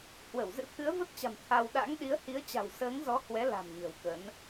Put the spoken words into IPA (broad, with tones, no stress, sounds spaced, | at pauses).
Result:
h w ə˧˩ w z ɨ̰˧˥ t̪ʰ ɨ˨˦ ə̯ v ə˦˥ t̚ t͡ɕ a̤˨˩ m t̪ʰ a˧ w ɗ a̰˧˥ ŋ ɗ i˨˦ ə̯ h i˨˦ ə̯ t͡ɕ a̤˨˩ w s əː˨˦ ŋ z ɔ˨˦ h w ɛ˨˦ l a̤˨˩ m ɲ ə̤˨˩ w k ə˨˦ n